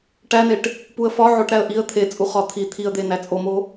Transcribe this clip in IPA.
ʈ æ n e ʈ | p u ə̯ f ɒ ʕ o ʈ ɾ æ ə̯ ʔ i ə̯ t̪ʰ e t͡sʼ u χ ɒ t̪ʰ i t̪ʰ i ə̯ d̪ e n æ t͡sʼ o m o

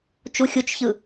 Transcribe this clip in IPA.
t͡ʃ u xʲ u t͡ʃ ç ɯ

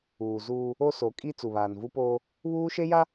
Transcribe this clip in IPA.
uː˨ z uː˦ | o˦ s o˨˦ kʼ i˦ t͡s u˨ β aː˨ n v u˦ p oː˦ | β uː˦ ʃ e˦ j a˦

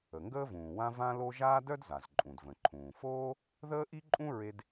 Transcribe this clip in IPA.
ə˩ ŋ ɡ əː˥ v ũː˩ w ã˥ v ã˥ l o˥ ʒ aː˥ d œ˥ d z a˩ z ǃʼ ũ˩ d v ə̃˩ ǃʰ ũː˩ f oː˥ | ð əː˥ ʔ i˥ ǃʼ ũ˥ ɹ e˥ d

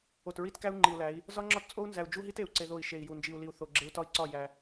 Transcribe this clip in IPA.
o˨ t ɹ i˦ t k æ˦ u̯ ŋ͡ǃ i˨ u̯ l æ˨˦ i̯ | z ɒ˦ ŋ͡ǁ ɒ˦ t t͡sʼ o˦ u̯ n z æ˨ u̯ d͡ʒ u˦ ɦ i˦ t e˨ u̯ ǀ e˦ ð o˦˨ i̯ ʃ e˨ i̯ j u˨ n d͡ʒ i˨ u̯ l i˨ u̯ θ o˨ ɡ͡ǁ e˦ u̯ t ɒ˦ i̯ ǀ ɒ˦˨ j æ˦

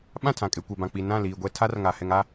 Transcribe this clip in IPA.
ɓ ã˦˨ tʰ ã˨ kʼ e˨ kʷ ɛ˨ b ã˨ k͡p i˨ n ã˦˨ l iː˨ ɡʷ ɛ˦ tʰ a˦ r ŋ a˨ h ɛ˨ ŋ a˦˨

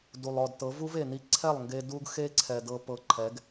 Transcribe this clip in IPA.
d u˨ lˠ ɔ˨ d t ɤ˨˦ v u˦ v e˨ n i˧ ǀʰ ɛ˦˨ lˠ ŋ ɡ e˧ d u˧ ɡ x e˧ ǀʰ ɛ˨ d ɤ˧ p ɤ˧ ǃʰ ɛ˨˦ ɡ

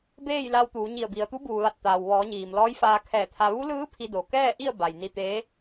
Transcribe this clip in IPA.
b eː˥˨ j l a˧ w t̪ uː˩˧ ɲ i˧˩ ə̯ b i˩ ə̯ t̪ u˧˥ b uː˩ ʋ a˧˩ t̚ t̪ aː˩ w ʋ ɔː˩˧ ɲ iː˩ m l ɔː˧˥ j f aː˧ kʰ ɛː˧˩ t̪ʰ a˧ ʋ u˧˥ l ɯː˧˥ pʰ i˧ d o˩ k ɛː˥˨ ʔ i˥˨ ə̯ b a˩ j n i˧ t̪ eː˧˥

